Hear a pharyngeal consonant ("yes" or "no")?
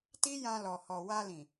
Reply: no